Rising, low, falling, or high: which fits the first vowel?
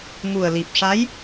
low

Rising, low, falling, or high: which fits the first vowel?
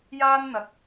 high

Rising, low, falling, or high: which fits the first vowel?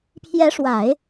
rising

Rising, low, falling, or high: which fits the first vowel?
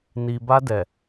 low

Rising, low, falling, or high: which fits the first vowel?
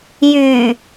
low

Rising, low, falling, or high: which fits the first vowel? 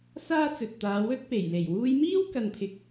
high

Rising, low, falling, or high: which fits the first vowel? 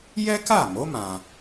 high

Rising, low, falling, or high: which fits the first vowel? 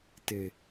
low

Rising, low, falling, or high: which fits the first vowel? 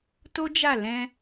high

